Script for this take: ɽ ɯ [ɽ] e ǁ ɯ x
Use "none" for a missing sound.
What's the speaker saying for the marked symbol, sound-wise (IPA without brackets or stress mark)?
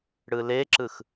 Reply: l